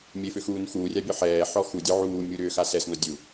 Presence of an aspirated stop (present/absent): absent